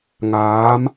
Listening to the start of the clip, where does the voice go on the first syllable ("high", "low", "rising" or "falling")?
rising